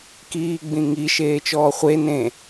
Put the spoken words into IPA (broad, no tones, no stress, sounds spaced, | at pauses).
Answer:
k iː ɡ͡b ĩ ŋ i ʃ eː t͡ʃ ɔː χʷ e n ẽ